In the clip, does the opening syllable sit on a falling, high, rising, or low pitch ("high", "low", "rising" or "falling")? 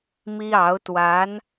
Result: high